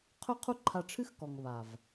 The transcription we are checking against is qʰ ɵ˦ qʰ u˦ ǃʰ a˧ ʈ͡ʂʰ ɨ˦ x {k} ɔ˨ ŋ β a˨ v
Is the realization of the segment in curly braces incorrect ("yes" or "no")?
no